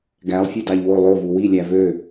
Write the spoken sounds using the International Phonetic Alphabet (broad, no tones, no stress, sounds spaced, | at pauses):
ɡ æ lˠ fʲ e d ɑ ʎ w o lˠ o v u w i lʲ æ v ø